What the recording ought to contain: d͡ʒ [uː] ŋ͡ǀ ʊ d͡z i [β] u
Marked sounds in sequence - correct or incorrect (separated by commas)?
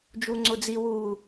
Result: incorrect, incorrect